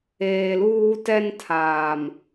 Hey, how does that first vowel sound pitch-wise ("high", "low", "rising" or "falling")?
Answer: low